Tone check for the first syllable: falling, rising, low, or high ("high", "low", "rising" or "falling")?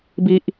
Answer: high